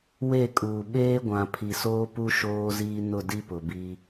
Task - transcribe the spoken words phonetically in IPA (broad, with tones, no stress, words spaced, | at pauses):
we˦˨kʼuː˨ ɓeː˦ɡʷã˨ pʰi˨soː˦pu˦ ʃoː˦ziː˦ nʊ˦˨di˦pʊ˨bi˦